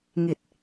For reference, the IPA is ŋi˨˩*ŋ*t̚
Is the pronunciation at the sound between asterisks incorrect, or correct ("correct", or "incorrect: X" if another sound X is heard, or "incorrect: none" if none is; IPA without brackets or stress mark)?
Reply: incorrect: none